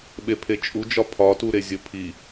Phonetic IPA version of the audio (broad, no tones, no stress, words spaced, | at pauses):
ɓepʰet͡ʃʼud͡ʒɒ pʰɒtuɾe zʲəpʰi